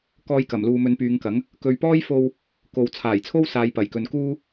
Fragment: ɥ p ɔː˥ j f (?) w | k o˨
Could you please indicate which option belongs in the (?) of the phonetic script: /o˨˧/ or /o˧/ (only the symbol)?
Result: o˧